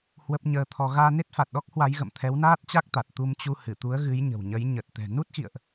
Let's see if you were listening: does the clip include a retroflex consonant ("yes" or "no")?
no